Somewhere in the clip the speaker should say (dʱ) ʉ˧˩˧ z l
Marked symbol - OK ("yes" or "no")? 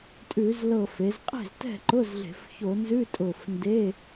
no